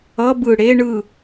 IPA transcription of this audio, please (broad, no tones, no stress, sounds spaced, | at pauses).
ʌ b ɯ ɽ e ɳ ɯ